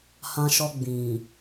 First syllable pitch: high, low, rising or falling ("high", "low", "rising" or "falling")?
high